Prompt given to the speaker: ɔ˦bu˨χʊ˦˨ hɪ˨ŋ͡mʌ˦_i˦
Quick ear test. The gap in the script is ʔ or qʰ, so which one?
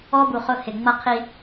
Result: qʰ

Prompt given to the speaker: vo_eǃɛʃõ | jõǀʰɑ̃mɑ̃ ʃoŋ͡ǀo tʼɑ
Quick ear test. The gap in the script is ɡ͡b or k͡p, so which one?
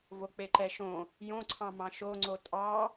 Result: k͡p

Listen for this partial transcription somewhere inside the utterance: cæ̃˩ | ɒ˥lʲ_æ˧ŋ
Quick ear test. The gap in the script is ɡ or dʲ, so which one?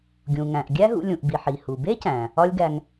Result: ɡ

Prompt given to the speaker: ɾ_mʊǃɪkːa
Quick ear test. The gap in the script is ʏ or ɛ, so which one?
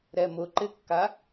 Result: ɛ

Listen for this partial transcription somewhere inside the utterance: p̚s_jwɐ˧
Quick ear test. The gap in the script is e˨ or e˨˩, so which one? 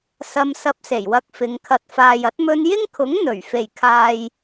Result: e˨˩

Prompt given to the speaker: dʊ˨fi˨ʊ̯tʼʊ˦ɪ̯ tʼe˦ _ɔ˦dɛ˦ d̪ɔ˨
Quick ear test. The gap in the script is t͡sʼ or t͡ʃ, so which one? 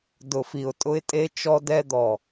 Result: t͡ʃ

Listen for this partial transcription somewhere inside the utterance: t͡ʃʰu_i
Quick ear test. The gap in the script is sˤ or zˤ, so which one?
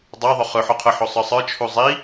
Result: zˤ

